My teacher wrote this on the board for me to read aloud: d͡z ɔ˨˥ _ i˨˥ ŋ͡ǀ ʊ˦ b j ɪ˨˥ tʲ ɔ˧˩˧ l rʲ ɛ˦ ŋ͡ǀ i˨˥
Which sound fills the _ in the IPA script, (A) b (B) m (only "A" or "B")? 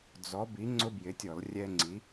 A